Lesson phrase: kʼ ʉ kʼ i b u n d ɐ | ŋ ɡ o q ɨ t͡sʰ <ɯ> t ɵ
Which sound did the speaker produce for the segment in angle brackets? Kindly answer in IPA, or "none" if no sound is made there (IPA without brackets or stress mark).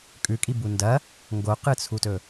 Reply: u